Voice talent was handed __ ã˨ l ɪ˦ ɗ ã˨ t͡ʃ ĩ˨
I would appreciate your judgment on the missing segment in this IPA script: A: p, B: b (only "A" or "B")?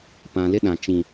A